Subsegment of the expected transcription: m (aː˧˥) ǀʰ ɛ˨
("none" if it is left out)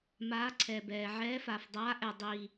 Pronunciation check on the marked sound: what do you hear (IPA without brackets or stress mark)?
aː˧˥